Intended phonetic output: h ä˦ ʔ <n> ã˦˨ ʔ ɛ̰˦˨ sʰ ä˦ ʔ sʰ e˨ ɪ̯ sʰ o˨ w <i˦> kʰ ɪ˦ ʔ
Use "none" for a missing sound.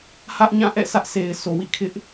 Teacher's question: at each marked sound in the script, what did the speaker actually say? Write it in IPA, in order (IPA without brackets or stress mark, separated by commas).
ɲ, ḭ˦˨